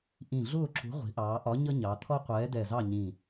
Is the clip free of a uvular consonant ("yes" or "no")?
no